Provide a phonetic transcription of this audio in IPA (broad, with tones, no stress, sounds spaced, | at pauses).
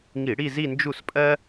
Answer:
ŋ i˧˩˧ ɽ i˥˧ z i˥˧ n d͡ʒ u˥˩ s pʼ ɜ˥